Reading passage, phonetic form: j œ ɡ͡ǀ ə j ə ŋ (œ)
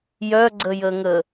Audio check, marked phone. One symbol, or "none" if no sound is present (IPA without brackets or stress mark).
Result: ə